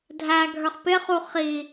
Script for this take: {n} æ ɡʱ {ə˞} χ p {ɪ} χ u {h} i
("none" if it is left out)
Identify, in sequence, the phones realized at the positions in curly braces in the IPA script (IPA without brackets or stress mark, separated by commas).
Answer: dʱ, ə˞, ɪ, χ